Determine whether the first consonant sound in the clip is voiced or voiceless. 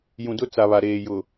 voiced